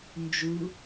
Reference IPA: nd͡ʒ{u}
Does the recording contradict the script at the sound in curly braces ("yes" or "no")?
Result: no